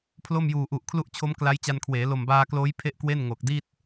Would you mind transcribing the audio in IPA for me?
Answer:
pʰlo˥˩mjuː˨˩ʔu˨˩ʔkʰlu˥˩ʔ t͡ɕʰo˦˥m kla˦˥jt͡ɕa˧nkʰweː˩˦ lo˨˩mbaː˧kloː˦˥j pʰe˥˩ʔkwe˥˩n ŋo˨˩k̚di˥˩t̚

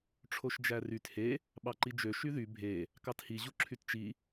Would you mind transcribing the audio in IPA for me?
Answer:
ʈ͡ʂʰoʃd͡ʒæryt he | ɓɑǃid͡ʒø ʃyðy bʱe | kɑthi ʑuǁʰytt͡ʃi

